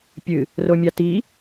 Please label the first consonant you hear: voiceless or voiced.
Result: voiceless